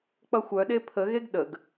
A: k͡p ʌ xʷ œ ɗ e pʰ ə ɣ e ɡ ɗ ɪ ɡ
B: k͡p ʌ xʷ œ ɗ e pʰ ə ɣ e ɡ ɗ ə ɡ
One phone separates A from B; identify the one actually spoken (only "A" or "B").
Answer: B